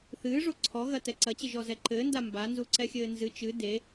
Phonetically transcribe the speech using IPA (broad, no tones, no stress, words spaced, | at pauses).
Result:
θɨː ʐoǀʰɔɣɐ tɛǀɐt͡ɕɘʒ ɔzɛǃɘːnda mbanzu ǀɛxʲɘːnzɨ t͡ʃɨ de